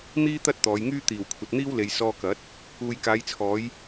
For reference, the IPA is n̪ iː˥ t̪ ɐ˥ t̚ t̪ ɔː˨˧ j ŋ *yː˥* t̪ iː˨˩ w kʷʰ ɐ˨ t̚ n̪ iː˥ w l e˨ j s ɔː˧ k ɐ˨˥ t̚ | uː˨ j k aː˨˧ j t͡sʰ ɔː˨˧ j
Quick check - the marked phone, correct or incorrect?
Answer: correct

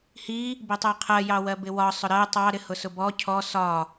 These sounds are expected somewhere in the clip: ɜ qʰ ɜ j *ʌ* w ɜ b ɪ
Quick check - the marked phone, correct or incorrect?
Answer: incorrect: ɑ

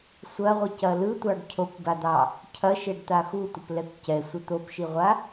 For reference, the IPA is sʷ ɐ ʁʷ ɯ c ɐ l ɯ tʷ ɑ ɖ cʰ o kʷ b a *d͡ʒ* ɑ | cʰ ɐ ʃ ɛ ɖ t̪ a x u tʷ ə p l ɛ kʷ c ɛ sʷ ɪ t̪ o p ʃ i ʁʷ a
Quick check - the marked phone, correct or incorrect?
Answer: incorrect: d̪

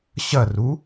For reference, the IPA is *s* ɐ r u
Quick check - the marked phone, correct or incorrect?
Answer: incorrect: ɕ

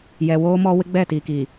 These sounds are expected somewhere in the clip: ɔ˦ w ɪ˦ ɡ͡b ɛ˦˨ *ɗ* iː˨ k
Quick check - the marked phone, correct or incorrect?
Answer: incorrect: t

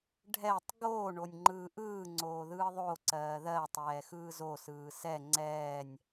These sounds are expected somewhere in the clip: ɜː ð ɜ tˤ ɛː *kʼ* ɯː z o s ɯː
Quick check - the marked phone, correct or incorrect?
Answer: incorrect: x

